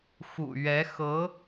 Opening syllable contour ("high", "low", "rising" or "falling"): low